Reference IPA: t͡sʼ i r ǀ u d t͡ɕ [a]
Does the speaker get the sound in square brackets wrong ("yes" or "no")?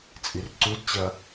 yes